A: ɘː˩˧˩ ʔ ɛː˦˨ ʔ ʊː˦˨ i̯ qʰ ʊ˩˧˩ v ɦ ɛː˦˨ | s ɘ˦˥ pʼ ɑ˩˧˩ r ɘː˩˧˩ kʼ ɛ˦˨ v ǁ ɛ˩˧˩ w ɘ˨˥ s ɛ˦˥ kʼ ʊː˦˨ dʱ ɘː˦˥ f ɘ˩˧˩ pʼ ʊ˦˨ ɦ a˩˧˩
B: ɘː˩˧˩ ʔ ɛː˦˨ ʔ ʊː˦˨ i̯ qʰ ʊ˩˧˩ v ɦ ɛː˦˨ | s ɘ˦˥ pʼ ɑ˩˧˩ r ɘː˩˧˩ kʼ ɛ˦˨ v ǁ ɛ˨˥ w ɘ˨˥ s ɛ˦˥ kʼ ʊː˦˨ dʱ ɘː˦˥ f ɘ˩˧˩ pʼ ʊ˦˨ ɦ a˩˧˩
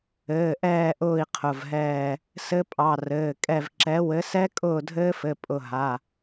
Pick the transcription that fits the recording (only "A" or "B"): B